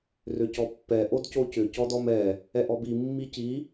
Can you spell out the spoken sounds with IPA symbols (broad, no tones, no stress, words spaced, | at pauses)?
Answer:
rʏcɔpːɛ ʔodcocʏ cɔdɔmɛ | ɛʔɔbi mːici